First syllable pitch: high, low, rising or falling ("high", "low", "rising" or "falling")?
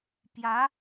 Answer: rising